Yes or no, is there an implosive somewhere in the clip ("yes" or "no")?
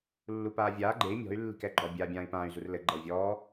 no